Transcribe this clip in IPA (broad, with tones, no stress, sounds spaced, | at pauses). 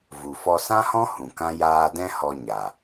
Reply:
v u˨ f ɔ˧ s ã˦ h ɔ̃˦ h ũ˨ k ã˦ j aː˧ d ɛ̃˦ h ɔ˧ ɲ a˨